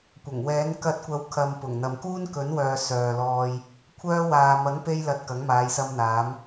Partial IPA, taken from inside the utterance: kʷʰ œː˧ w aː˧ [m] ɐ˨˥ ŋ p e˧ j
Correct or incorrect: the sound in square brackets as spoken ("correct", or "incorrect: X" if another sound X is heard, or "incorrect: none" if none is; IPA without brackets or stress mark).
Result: correct